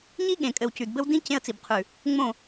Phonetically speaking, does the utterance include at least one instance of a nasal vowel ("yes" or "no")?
yes